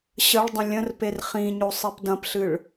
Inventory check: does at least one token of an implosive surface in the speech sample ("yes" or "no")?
no